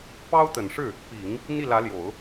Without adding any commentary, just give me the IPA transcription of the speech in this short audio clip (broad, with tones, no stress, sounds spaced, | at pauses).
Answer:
p ɑ˥ ʊ̯ t̪ ə˨˩ n ʂ ɻ̩˥˩ | p i˨˩˦ ŋ | n̪ i˥˩ l ä˧˥ l j o˨˩˦ ʊ̯